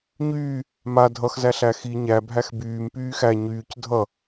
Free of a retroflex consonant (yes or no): yes